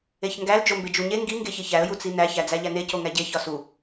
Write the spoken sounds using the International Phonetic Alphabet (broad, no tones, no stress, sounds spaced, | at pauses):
e ç ŋ ɡ æ l d͡ʒ o m b e d͡ʒ u ɲ e ŋ ɡ i ŋ ɡ e ç e ç æ ə̯ j u t͡s i n æ ç æ d͡z æ ʎ æ n e c o ŋ æ ɟ e ç ɒ s u